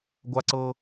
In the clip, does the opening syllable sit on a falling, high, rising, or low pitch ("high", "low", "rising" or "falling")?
high